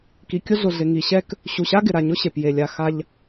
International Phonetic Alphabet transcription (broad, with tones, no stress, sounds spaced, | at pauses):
k i˩ kʲ ʊ˥ ɮ ʊ˩ ɮ ɪ˩ ŋ i˩ ɕ ɛ˥ k | ɕ u˩ ɕ a˥ ɡ ɪ˩ ɾ a˩ ɲ ʊ˥ ɕ e˩ p j e˩ lʲ a˩ x a˧ ʎ